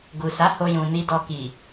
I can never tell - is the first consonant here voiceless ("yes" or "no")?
no